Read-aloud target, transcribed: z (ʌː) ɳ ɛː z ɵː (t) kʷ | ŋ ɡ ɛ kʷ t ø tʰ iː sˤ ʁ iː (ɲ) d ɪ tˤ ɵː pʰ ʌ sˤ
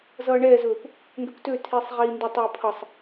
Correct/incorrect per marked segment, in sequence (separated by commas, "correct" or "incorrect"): correct, incorrect, incorrect